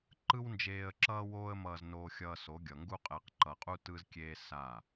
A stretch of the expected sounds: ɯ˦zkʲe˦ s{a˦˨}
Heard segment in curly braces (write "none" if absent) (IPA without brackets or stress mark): a˦˨